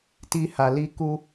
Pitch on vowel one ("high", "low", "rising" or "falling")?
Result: high